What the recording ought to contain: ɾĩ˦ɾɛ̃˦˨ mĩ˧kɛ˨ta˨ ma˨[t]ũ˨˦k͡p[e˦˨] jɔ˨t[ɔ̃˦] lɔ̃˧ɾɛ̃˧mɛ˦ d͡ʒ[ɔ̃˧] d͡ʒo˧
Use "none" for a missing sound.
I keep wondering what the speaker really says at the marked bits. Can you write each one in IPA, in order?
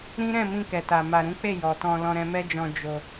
ɾ, e˦˨, ɔ̃˧, ɔ̃˧

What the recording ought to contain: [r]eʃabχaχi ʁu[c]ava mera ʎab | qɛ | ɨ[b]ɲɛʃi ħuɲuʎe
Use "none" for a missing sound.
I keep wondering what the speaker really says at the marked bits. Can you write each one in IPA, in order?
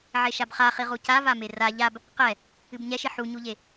ʕ, c, b

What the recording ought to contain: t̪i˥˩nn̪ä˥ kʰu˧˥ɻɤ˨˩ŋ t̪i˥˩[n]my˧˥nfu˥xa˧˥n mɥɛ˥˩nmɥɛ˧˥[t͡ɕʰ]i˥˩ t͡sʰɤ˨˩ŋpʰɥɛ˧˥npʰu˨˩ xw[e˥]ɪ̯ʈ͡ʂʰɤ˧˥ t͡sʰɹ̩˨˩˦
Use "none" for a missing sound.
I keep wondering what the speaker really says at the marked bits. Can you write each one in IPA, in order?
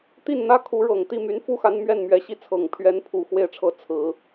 none, ɕ, e˥˩

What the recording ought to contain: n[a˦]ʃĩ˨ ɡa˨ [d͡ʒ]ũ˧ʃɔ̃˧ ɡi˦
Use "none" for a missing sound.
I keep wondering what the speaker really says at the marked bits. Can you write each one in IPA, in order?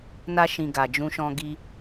a˧, d͡ʒ

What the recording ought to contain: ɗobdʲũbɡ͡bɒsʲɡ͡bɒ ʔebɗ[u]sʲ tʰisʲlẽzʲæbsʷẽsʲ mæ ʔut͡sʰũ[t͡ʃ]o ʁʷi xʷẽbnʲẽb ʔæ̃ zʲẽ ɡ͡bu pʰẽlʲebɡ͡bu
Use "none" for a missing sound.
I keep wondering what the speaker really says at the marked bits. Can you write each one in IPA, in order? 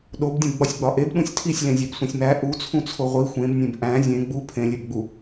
ũ, t͡sʰ

